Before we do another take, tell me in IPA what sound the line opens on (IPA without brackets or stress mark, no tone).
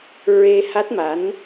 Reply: ɹ